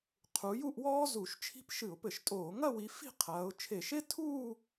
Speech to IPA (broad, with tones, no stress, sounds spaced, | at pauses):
qʰ u˨˦ j u˥˧ ʔ w ɔː˥ z u˧˩˧ ʃ t͡ʃʰ i̤˥ p ʃ ɨ˧˩˧ ʊ̯ p ɘ˧˩˧ ʃ tʼ oː˧˩˧ ŋ ɐ˥˧ w i˨˦ f i̤˥˧ qʰ ɐː˨˦ ʊ̯ t͡ʃʰ e˧˩˧ ʃ e˥ tʰ uː˥˧